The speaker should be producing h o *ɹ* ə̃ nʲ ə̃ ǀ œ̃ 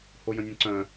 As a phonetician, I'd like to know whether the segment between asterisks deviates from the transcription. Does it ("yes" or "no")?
yes